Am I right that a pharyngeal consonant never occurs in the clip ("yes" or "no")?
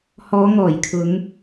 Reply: yes